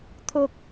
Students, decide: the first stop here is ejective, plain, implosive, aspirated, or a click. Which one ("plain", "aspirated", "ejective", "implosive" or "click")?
aspirated